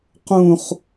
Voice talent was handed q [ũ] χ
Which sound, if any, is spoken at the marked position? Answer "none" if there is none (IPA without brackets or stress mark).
ũ